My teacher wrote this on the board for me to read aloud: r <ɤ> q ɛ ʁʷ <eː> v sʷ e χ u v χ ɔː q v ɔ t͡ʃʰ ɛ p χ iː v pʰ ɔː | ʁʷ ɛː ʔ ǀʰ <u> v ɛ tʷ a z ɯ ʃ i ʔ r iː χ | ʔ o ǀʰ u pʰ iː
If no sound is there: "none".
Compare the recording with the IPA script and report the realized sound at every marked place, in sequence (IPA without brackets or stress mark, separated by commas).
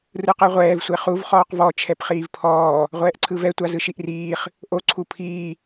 ɯ, ɛː, ɯ